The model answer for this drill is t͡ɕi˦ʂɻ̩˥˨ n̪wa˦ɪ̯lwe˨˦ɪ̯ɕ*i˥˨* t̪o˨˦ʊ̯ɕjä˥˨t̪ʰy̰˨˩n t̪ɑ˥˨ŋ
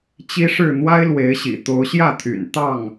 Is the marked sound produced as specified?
no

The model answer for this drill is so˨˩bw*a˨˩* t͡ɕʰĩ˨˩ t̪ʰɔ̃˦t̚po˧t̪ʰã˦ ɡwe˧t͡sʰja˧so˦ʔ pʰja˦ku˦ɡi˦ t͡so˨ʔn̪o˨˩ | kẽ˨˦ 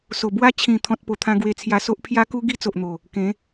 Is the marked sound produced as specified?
no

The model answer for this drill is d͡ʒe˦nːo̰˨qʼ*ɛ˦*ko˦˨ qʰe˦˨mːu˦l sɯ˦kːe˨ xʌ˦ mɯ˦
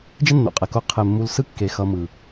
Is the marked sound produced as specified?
no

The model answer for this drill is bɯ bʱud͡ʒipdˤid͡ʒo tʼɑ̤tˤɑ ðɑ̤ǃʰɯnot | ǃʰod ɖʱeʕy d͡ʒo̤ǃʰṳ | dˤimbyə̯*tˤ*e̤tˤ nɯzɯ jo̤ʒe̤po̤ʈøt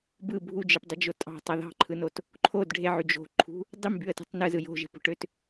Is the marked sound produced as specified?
no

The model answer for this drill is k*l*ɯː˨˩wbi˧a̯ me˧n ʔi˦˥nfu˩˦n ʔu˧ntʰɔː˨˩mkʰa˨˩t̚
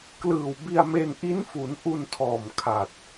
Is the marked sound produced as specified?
yes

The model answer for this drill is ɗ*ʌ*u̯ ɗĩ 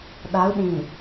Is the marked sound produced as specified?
no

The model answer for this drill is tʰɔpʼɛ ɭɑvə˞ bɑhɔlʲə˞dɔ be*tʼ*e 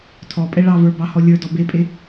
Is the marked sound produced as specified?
no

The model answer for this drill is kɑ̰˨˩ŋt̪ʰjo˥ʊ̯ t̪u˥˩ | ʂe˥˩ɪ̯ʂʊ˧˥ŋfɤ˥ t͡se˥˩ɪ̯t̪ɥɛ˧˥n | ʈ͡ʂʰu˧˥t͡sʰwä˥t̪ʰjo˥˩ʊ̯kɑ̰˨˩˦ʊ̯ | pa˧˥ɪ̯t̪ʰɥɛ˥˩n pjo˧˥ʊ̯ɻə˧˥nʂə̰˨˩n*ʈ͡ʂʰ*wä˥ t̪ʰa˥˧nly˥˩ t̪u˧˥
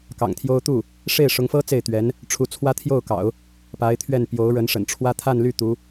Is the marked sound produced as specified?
yes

